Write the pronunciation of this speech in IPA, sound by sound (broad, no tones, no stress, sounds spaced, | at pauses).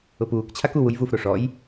ʊ p uː k t͡ɕʰ a k u w u j v u f ɾ o ʂ ɔ j